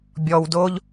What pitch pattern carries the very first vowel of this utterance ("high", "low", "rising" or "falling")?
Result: low